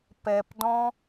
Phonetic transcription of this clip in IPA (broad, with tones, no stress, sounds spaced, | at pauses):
p ɛ˨ p d ɔ̃˧